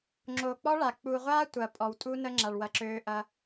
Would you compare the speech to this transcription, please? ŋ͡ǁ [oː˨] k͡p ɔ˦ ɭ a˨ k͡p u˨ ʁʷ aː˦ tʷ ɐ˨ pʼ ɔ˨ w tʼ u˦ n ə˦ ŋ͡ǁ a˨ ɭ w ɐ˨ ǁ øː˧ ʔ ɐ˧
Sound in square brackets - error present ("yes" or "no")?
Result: no